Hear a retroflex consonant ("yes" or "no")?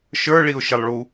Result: yes